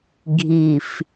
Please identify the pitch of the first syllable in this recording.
low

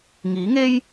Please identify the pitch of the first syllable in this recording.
rising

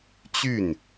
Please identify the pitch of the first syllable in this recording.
falling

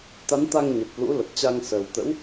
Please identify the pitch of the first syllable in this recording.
rising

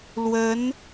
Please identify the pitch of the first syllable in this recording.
rising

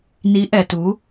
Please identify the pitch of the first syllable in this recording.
rising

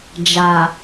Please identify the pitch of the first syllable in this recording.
low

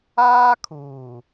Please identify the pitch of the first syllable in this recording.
high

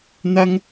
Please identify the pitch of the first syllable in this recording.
high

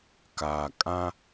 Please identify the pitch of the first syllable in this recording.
low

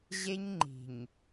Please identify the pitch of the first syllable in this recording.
high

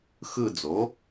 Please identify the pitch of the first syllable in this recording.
falling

